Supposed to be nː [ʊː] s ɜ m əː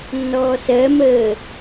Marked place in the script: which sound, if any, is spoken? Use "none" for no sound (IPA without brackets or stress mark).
ɔː